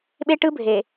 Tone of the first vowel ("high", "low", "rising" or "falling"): high